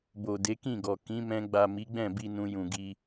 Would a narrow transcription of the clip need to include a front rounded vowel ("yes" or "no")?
no